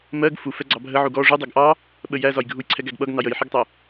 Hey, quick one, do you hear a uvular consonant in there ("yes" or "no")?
no